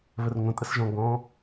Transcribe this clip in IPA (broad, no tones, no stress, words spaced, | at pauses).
βərŋʷə̃ tʼəsʒɔ̃ ɡɔ̃